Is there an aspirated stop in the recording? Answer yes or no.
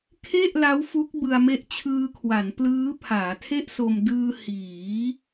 yes